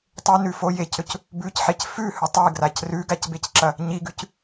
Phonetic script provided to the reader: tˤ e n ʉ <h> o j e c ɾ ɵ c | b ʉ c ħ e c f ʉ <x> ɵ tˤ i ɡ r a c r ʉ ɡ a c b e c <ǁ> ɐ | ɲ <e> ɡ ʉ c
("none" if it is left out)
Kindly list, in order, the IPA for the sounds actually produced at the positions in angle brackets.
f, h, ǁ, i

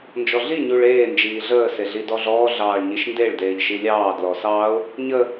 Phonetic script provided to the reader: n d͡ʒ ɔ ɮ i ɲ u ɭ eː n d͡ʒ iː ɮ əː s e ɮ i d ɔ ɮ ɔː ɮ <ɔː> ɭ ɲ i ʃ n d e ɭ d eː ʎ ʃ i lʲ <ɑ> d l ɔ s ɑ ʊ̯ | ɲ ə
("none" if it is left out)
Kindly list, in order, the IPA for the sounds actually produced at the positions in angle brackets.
ɑː, ɑː

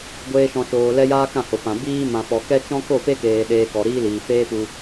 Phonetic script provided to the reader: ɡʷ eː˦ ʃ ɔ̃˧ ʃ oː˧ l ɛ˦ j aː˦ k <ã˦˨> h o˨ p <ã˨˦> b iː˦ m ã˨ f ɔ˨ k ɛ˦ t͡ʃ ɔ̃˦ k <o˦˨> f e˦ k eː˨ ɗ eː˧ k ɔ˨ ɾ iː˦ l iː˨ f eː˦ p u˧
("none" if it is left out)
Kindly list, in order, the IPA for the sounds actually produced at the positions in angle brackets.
ã˦˨, ã˨, o˦˨

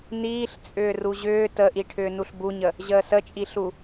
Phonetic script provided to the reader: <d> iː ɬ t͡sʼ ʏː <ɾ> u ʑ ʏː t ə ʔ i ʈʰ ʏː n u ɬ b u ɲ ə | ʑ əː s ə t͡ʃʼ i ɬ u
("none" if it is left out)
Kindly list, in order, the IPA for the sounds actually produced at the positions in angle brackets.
n, r

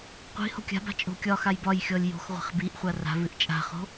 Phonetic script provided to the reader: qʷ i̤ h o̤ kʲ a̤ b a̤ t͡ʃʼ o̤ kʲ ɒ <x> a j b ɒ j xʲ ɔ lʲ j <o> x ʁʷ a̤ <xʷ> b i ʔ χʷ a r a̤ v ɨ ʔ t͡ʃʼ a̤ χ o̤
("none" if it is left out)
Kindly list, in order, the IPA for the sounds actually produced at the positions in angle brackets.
x, o̤, χ

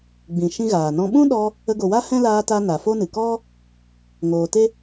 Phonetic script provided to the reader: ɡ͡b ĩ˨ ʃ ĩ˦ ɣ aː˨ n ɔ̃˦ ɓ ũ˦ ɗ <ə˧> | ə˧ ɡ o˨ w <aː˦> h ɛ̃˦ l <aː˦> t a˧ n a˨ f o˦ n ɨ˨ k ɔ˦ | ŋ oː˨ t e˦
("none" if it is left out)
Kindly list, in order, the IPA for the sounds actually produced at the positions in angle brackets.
ɔ˧, a˦, aː˧

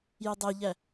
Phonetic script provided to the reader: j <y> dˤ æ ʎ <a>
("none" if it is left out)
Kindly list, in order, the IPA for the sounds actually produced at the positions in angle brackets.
y, æ

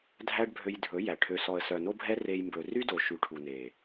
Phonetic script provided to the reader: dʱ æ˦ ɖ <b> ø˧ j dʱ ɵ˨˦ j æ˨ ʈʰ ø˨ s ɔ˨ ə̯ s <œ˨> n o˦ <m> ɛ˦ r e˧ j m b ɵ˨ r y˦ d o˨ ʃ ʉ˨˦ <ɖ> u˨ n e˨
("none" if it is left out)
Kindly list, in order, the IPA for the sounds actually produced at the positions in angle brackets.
bʱ, œ˨, bʱ, ʈʰ

